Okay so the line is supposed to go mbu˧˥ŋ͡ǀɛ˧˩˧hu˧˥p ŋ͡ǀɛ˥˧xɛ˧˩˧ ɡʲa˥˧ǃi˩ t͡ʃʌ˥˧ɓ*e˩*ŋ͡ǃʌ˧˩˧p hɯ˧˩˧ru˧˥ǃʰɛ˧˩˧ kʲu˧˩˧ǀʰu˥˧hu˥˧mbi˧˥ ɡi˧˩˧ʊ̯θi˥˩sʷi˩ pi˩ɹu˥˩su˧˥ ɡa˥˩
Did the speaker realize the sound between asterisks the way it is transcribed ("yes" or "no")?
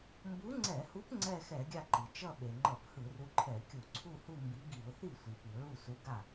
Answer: yes